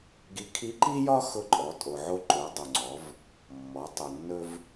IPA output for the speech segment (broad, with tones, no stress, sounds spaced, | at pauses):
ɡ i˧˥ kʰ i˧˥ ǃ i˥ j ɒ˥ x ʊ˧ ǃʼ ɔ˩˧ tʼ o˩ ʕ o˧ ǃ o˩˧ dˤ o˩ ŋ͡ǀ ɔ˩˧ v | mː ɔ˩˧ tˤ o˩ nː ɵ˧ v